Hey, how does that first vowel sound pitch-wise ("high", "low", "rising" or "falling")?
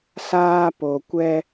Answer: high